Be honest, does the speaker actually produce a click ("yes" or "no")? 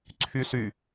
yes